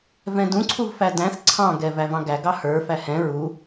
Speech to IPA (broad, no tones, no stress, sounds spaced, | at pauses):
v ɛ̃ d ũ ǀʰ u v f æ d æ̃ θ ǀʰ ɑ̃ ɡ ɛ v æ v ɑ̃ ɡ æ ɡ ɑ h ə˞ f æ h ɛ̃ ɹ u